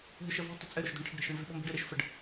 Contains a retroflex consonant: yes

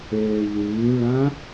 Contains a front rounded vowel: yes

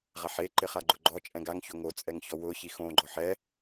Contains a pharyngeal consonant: yes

